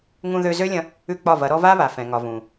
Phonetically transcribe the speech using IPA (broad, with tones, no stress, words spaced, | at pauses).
ŋũ˧ðø˧ zø˦lʲɐ̃˧ | ʉ˦˨k͡pɒ˦˨vɐ˨˦ɾɔ˦ va˦βa˨fɛ̃˨ŋɒ˨ vũ˨